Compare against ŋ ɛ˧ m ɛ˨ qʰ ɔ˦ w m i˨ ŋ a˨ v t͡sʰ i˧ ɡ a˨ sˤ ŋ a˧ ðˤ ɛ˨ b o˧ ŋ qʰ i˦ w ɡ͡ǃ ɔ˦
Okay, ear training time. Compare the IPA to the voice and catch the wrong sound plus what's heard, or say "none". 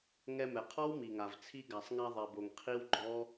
o˧ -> o˨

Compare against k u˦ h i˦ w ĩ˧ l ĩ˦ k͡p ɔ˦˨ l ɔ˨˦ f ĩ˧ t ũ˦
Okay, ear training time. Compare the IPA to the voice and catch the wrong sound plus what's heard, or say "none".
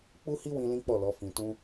k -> k͡p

